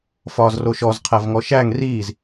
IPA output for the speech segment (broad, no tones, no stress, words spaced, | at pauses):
fɒːzroʃɔz qʰævŋɔʃæŋ riːz